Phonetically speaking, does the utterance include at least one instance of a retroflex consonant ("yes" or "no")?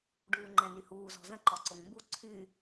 yes